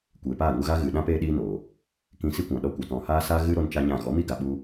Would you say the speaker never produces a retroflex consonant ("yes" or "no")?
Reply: yes